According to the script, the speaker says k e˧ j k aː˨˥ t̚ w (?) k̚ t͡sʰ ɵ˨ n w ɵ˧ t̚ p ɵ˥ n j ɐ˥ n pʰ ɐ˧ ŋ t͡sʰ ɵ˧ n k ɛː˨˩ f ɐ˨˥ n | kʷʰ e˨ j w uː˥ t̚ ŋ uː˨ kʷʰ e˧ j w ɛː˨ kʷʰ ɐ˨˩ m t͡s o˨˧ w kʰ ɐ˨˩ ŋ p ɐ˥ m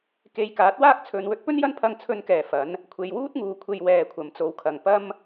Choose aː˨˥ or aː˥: aː˥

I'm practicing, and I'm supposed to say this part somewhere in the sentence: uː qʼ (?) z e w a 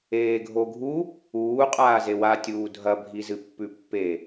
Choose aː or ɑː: aː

